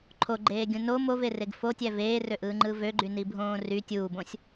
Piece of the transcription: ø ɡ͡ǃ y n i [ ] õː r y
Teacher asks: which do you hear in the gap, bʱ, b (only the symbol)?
bʱ